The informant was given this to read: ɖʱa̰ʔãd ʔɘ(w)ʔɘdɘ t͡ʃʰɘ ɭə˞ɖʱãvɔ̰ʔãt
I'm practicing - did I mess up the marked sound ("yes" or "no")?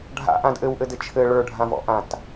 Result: no